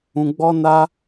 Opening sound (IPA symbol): ũ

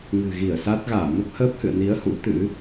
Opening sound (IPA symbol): ŋ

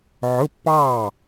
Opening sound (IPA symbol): ʕ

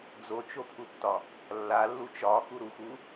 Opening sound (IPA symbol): d͡z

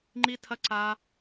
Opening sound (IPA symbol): ŋ͡ǃ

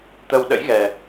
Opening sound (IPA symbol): t̪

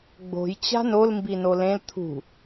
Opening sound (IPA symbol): ɡ͡b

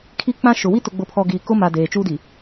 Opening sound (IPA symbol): kʰ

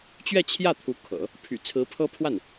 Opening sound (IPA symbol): t͡ɕ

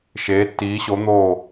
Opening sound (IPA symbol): ʃ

